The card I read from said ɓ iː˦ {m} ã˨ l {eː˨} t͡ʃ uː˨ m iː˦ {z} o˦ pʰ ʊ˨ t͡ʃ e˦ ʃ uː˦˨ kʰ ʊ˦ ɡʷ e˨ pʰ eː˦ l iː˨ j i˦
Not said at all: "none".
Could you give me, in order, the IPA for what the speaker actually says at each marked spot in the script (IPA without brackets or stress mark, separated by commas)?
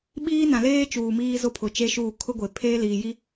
n, eː˦, z